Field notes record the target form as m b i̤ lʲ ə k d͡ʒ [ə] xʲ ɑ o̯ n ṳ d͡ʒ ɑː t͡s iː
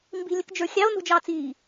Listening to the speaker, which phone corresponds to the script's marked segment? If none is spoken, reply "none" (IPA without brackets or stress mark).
ə˞